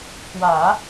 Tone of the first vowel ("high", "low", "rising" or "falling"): low